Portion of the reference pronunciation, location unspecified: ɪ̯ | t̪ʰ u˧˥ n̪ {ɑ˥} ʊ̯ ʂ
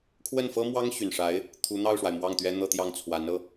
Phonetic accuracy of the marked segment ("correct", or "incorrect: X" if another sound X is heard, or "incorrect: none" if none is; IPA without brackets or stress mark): incorrect: ɑ˥˩